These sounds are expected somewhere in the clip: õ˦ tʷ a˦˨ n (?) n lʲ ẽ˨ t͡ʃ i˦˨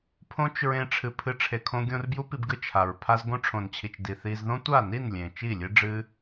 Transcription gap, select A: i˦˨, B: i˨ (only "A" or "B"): A